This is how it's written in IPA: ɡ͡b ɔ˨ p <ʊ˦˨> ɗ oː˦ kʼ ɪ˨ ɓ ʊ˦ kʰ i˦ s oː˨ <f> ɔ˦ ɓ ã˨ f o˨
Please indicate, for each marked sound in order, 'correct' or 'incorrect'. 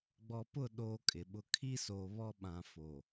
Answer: correct, incorrect

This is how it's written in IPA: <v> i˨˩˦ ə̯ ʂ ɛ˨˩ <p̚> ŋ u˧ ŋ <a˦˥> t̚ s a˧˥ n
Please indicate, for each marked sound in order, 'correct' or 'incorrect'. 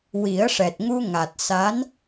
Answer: incorrect, incorrect, incorrect

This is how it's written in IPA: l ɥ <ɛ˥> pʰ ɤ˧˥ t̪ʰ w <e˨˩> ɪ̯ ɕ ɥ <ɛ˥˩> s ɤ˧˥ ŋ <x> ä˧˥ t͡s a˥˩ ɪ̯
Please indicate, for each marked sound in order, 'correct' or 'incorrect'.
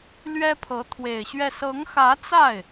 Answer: correct, correct, correct, correct

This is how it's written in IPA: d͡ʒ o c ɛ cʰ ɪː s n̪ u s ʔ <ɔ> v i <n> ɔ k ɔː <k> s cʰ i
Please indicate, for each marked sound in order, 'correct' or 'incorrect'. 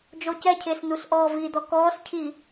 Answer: incorrect, incorrect, incorrect

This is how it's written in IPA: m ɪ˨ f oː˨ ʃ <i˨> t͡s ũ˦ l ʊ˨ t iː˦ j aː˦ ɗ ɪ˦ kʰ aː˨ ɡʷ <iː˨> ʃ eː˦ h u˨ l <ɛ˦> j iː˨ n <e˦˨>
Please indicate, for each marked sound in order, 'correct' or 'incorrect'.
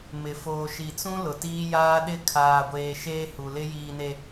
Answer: correct, incorrect, incorrect, incorrect

